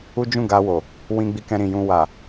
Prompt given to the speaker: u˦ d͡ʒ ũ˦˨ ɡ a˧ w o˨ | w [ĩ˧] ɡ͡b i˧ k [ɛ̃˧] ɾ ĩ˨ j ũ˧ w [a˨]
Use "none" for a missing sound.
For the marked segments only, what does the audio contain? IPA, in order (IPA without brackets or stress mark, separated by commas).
ĩ˧, ɛ̃˧, a˨